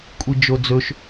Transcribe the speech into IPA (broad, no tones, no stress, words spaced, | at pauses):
kʷʼid͡ʒod͡zɵʃ